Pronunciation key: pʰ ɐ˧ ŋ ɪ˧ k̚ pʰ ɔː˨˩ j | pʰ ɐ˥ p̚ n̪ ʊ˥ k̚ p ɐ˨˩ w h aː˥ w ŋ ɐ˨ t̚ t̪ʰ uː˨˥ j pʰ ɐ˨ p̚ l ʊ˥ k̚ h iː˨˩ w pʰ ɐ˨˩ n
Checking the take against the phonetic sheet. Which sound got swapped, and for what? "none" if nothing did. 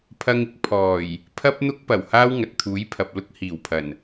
none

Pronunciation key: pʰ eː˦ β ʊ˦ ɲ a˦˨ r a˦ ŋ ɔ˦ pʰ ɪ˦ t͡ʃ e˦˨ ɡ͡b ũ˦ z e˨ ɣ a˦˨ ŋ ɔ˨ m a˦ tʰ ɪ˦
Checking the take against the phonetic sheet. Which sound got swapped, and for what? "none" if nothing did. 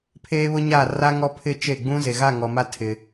none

